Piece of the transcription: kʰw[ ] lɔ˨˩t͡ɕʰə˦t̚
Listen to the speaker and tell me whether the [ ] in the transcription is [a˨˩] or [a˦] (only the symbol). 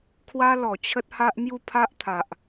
a˦